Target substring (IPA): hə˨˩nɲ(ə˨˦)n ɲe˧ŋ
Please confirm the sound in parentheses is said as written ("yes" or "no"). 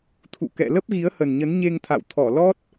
yes